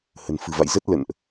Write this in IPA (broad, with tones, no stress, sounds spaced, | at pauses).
h ə̤˨˩ n f ɨ̤˨˩ v a̰˧˨ j z ə˦˥ t̚ l ə̰˧˨ n ʔ